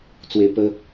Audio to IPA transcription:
t͡s w e˧ p ə˧

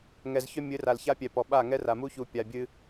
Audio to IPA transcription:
ŋ ɛ˨ z ç œ˦ mʲ ɨ˨˦ r a˨ l ç a˦ pʲ ɛ˨ p ɔ˨ ɓ a˦˨ ŋ ɛ˦ r a˨ m u˦ ç u˨ pʲ a˨ bʲ ɨ˦

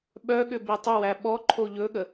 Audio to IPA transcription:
ɓ œ ɠ ʏ b i tˤ ʏ w æ ɓ ɔ ǃʰ o ʎ ɵ ɠ ə

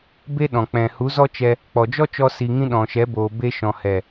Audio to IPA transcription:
b e˦ ɗ ɔ̃˨ k͡p ɛ̃˨ h u˨˦ z ɔ˦ t͡ʃ ɛ˧ | k͡p ɔ˨ d͡ʒ ɔ˦ t͡ʃ ɔ˧ s i˧ ŋ ĩ˦ ɗ ɔ̃˨ ʃ ɛ˨˦ b oː˨ b e˦ ʃ ɔ̃˨ h ɛ˨

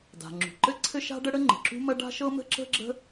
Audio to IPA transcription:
d a̤˩ ŋ͡ǁ ṳ˩ ǃ ɘ˥ ǀʰ ɘ˥ ʃ a̤˥ ɖ ə˥ ɽ ə˥ ŋ͡ǃ ə̤˩ ǁ ṳ˥ m ɐ˥ ɖ a̤˥ ʃ ɤ˥ m ə̤˥ ǁ ə̤˥ ɡ͡ǁ ə̤˥

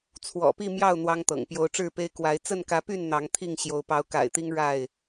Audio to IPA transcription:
t͡sʰ w ɔ̰˨˩ p i˥˨ m j ɑ˥˨ ʊ̯ n̪ w ɑ˦ ŋ t̪ ɤ̰˨˩ ŋ p j o˨˦ ʊ̯ ʈ͡ʂ ɻ̩˥˨ p e˦ ɪ̯ k w a˨˦ ɪ̯ t͡s ə˥˨ n k ä˨˦ p y˥˨ n n̪ ɑ˨˦ ŋ t̪ʰ i˥˨ ŋ ɕ j o˨˦ ʊ̯ p ɑ˨˦ ʊ̯ k a̰˨˩ ɪ̯ t̪ i˦ ŋ ɻ a˥˨ ɪ̯

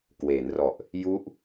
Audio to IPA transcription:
k w eː˩˦ n r ɔ˨˩ ʔ | j u˦˥ ʔ

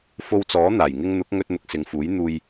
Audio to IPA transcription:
f o˧ w t͡s ɔː˨˥ n̪ aː˨˩ j ŋ ɪ˧ ŋ n̪ ʊ˨˥ k̚ ŋ ɵ˧ t̚ n̪ ʊ˨ k̚ s ɪ˨ ŋ f uː˨˥ j n̪ uː˧ j

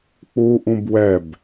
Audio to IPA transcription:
k͡p u ʔ ũ b w ɛ b

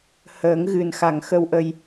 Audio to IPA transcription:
h əː˨˩˦ ŋ ɣ ɨ˨˩ n x a˨˩ ŋ x ə˧ w ʔ ə˧ j

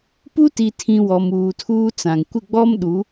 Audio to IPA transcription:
p u˦ t i˨ tʰ ĩ˨ w ɔ˨ m uː˨ tʰ uː˦ t͡s ã˨ ŋ kʷ ɪ˦˨ ɡ͡b ɔ˦ m ɗ u˨˦

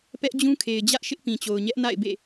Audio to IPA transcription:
p ɛ˦ ʔ d͡ʑ ũ˦ kʰ e˨ ɪ̯ d͡ʑ ä˦ ʔ ʃ ɪ˦ ʔ p ĩ˨ t͡ɕ o˨ ʊ̯ ɲ ɛ˦ ʔ n a̰˦˨ ɪ̯ b ḛ˦˨

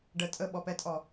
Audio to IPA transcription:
ɖ ə tʼ ə ɓ ɔ p ɛ tʼ ɔ

